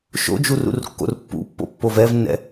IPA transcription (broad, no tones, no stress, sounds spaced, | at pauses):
ʃ o̰ d͡ʒ u r ṵ r kː o̰ r pː ṵ pː o̰ pː o v ɛ v nː ɛ̰